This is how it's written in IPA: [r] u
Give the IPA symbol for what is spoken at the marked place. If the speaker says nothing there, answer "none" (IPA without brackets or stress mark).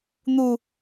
n̪